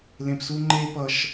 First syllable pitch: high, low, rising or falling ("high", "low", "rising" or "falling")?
high